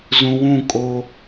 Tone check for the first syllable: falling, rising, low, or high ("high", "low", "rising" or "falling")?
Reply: low